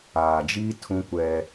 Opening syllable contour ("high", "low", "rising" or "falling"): low